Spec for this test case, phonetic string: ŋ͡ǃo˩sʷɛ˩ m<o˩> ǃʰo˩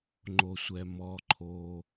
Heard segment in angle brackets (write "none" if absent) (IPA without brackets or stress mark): ɔ˩